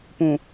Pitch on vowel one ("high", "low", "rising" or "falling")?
low